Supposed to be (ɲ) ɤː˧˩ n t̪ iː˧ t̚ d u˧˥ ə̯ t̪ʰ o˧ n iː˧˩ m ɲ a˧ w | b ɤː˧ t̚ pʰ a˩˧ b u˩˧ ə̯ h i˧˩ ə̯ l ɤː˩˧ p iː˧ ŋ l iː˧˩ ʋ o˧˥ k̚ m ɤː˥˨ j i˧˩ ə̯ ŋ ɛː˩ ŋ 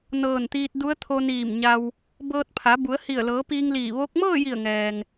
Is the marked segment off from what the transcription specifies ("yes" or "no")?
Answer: yes